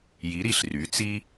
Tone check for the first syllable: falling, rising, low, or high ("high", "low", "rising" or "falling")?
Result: rising